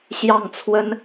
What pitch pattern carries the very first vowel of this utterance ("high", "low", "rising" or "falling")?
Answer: falling